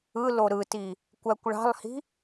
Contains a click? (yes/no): no